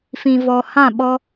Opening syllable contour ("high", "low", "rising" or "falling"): low